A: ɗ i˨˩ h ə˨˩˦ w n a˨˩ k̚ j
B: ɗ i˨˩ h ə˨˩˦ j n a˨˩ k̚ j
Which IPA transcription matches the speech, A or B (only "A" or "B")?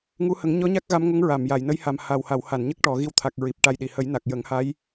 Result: B